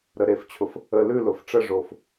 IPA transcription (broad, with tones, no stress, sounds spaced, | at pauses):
ɾ ə˨ ɾ e˨ f t͡ɕʰ ʊ˨ f | ə˨ l ʉ˦˨ l ʊ˨ f ʈ͡ʂ ə˦˨ ʐ o˨ f